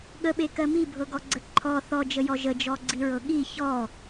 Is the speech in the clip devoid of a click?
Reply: no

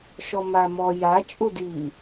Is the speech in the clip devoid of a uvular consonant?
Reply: yes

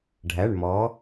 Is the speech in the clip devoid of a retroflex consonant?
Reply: no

